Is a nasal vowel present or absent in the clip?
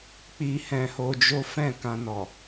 present